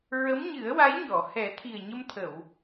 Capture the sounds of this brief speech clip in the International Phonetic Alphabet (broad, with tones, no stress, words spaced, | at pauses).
ɹə˧˥mɲɨ˨˩˦ə̯wa˧˥jɲɔ˨˩˨ hɛ˨˩˦t̪ʰi˨˩ə̯ ɲə˧mt̪ʰə˨˩˨w